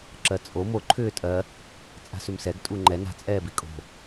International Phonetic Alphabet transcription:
ǁɜt͡sʼo mo ǃʰʏːtʼɜ | t͡sʼa̤sʏmsɛɡ tʼuŋ͡ǃɛ na̤t͡sʼɛːbi kʼo̤

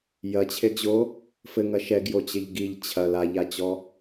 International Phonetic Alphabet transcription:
jɐt͡ɕʰeɡʑo | fɘŋɐ ʃɛɡjot͡ɕɘʎ ɡiʎ t͡ɕʰɐl aʎat͡ɕɔ

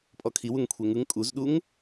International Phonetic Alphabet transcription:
pʼɔkʰiwuŋ kʷʰeŋɯŋ kʼuzɗuŋ

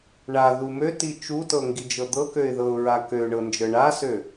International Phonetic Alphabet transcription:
ɳa ðumøti t͡ʃutɤ ŋɡid͡ʒɤd̪ɤkøɪ̯ ðɤʊ̯ɹakøɳɤ nd͡ʒɤɳasø

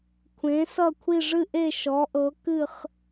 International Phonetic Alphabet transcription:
kʷʰẽ˨˥sʌ˥˨kʷʰi˥˨ ʐɨ˥˨ʔe˥˨ ʃɔ˨˥ʔɤ˨˥ kɨ˥˨χ

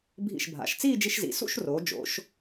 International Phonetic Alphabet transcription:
bʱḭ˧˩ʃbʱa̰˩˧ʃt͡siː˥˧ d͡ʒi˧ʃzḭ˩˧ sṵ˥˧ʃroː˩˧ d͡ʒo̰˩˧ʃ

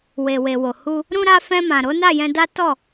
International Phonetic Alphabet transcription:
we˨we˨wo˨ hu˧ | ɾũ˧ɾa˧ fɛ̃˧mã˨ ɾo˨˦na˦˨jɛ̃˧da˦ tɔ˦˨

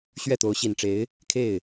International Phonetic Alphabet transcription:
ɕɥɛ˥˩t̪o˧˥ʊ̯ɕi˨˩nʈ͡ʂe˧˥ɪ̯ | kʰe˥˩ɪ̯

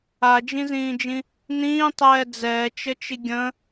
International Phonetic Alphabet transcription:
ad͡ʒĩzĩːd͡ʒĩ | nĩːtˤɛː d͡zɛːt͡ʃət͡ʃi ɡʲə̃

